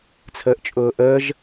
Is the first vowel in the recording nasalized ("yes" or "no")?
no